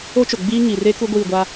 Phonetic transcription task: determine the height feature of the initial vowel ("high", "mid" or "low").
mid